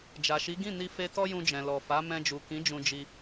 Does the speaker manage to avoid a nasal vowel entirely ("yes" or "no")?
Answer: no